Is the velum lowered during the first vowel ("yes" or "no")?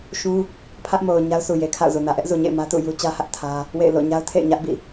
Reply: yes